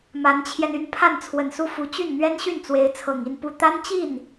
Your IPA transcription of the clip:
ma˧˥nt͡ɕʰjɛ˧ny˥˧n pʰa˥˩nt͡sʰwə˨˩nsu˥˩fu˧˥ t͡ɕy˥˩nn̪ɥɛ˥nɕy˥˩nt͡swe˧˥ɪ̯ t͡sʰɤ˨˩ŋi˥˧npu˥˩ t̪a˥nt͡ɕi˥˩n

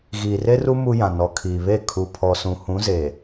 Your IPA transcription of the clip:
ɣiː˨re˦ru˦ mu˦jã˨ nɔ˨kʰiː˨βe˦˨ kʰu˨pʰɔ˨sũ˨ hũ˨˦ze˨

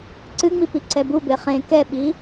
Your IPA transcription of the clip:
ǀɨŋ͡mipi ǀɛbube χẽ kɛɓi

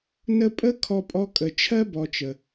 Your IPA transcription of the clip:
nə˦pʼə˥ kʰɔ˦pʼɔ˦kʼə˨ t͡ʃʰɜ˥bɔ˨t͡ʃə˩

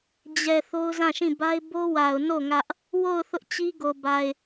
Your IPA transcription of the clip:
d͡ʑɛ˨ θo˦ʊ̯zã˦˨ʃĩ˦˨ ba˦ɪ̯ bo˦wa˨ʊ̯no˦˨ ŋä˦ʔ | wo˦˨ʊ̯ θʊ˦ʔt͡ɕi˦ɡo˨ba˨ɪ̯

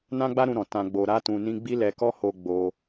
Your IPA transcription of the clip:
nã˦ɡ͡ba˦ɾũ˧ ɾɔ̃˨ tã˧ ɡ͡bo˧ ɾa˦tũ˧ nĩ˦ ɡ͡bi˦lɛ˧kɔ˦ho˧ ɡ͡bo˧

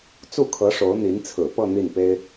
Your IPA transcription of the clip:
t͡su˥˩kʰɤ˧˥ ʂo˧˥ʊ̯n̪i˧˥nt͡sʰɹ̩˨˩pɤ˥˧ n̪i˥˩npe˥ɪ̯

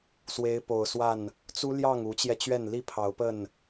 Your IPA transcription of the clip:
swe˨˦ɪ̯po˨˩ʊ̯swa˥˨n | t͡su˦ljɑ˥˨ŋ u˨˦t͡ɕjɛ˧t͡ɕɥɛ˥˨n li˥˨pʰɑ˨˦ʊ̯pə˥˨n

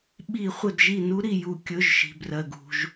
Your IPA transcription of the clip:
ɓi˧˩˧ χʷɘ˧˩dʒi˧˩nu˧˥ ɾi˧˩ju˧˩˧ kʲɵ˩˧˩ʒʃi̤˩ brɜ˩ɡṳ˩ʒ

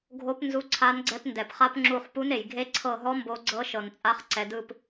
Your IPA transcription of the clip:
ɡʱo˧˥p nzu˧˥ǀʰa˧˥nɡ͡ǀɛ˧˥p ndɛ˩pχa˧˥pŋ͡ǁu˧˩χ pu˧˥ne˩j ɡʱe˧˥ǀʰɤ˧˩ɦɔ˧˥ mbo˧˥ɡ͡ǀɤ˧˥ʃɤ˩nt͡sʼa˧˥χ ǀɛ˩dɯ˧˩p

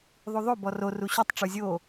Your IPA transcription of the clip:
ðˤuðˤo bɔro ruɕutˤ ʈ͡ʂuzʲo

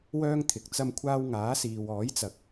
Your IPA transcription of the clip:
wœː˥ŋ t̪ʰɪ˨k̚t͡sɐ˥mkʷʰaː˥w ŋaː˨˥siː˨wɔː˨˥jt͡sɐ˨k̚

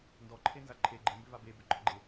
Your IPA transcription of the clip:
ndɔǃʰenza ǃʰe ɡ͡ǃembʏva bebʏɡ͡ǃɒɡ͡ǃe

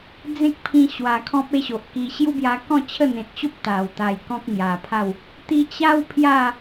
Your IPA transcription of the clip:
d͡zẽ˦k̚pʰĩ˧ɕwa˨˩ kʰɔ̃˦p̚e˦ɕo˨ʔki˧ ɕju˦bja˧kɔ̃˥˧t͡ɕʰə˥˧ n̪ẽ˨t̚t͡ɕo˦p̚ t̪a˨˩w t̪a˨˩j kɔ̃˦k̚ŋja˨˩pʰa˥˧w | t̪i˧t͡ɕa˦w pʰja˥˧

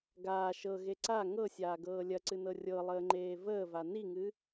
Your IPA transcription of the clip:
ɡaː ʃɤɣe ǀa ŋɤsʲaːɡɤː lʲɐǀɨnɤ rʲɤlˠəːŋ͡ǃeː vəːva niŋɨ

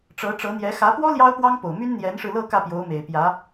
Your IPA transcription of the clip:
ʈ͡ʂɤ˧˥ ʈ͡ʂɤ˧˥n̪jɛ˧˥ xä˧˥pwɔ˥ ljɑ˥ʊ̯pwɑ˥ŋpo˨˩ʊ̯my˥n n̪jɛ˧˥nʂɻ̩˧lɤ˥˧ kä˥˩pjo˧˥ʊ̯me˨˩ɪ̯pjä˧˥

